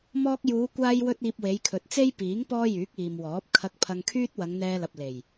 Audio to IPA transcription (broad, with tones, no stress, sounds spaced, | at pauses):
m ɔː˧ k̚ j uː˨˧ kʷ aː˥ j w ɵ˥ t̚ iː˧ p̚ w e˨˧ j kʰ ɵ˨ t̚ t͡s e˥ j p iː˨˥ ŋ p ɔː˥ j yː˨˥ k̚ iː˨ m w ɔː˨˥ p̚ kʰ ɐ˧ k̚ pʰ ɐ˧ ŋ kʰ yː˥ t̚ w ɐ˨˧ ŋ n̪ ɛː˧ l ɐ˨ p̚ l e˨˩ j